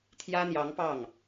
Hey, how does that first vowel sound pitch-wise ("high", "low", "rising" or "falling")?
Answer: high